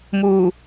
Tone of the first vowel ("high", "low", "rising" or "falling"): low